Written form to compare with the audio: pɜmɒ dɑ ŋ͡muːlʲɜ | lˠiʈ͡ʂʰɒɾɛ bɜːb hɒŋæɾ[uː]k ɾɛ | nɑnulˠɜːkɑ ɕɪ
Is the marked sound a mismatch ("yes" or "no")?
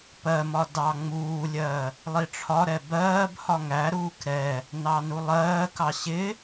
no